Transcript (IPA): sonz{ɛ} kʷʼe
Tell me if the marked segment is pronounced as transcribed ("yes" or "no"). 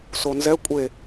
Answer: yes